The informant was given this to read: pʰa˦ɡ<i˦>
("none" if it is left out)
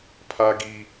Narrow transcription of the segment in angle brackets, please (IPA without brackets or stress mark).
i˦